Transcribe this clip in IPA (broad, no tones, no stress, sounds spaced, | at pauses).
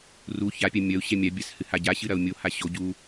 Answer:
r u ç a pʲ a mʲ ɐ u̯ ɕ ɛ mʲ a bʲ a s h ɨ h a ɟ a ɕ ɨ ɾ ɐ u̯ mʲ o h a ɕ o ɟ u